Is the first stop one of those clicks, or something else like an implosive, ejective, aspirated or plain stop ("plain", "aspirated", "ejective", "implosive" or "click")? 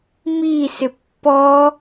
plain